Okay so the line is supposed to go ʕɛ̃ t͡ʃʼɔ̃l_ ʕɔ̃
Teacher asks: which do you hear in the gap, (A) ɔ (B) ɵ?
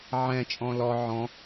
A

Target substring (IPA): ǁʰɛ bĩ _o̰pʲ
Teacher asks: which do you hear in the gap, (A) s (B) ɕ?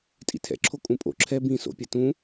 A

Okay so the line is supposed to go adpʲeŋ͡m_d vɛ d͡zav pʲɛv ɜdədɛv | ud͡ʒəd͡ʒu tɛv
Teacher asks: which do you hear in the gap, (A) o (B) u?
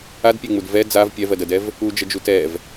B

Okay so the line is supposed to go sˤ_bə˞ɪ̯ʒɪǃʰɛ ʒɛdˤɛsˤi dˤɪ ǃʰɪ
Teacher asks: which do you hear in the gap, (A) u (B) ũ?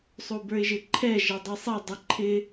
A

